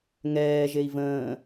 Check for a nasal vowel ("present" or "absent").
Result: present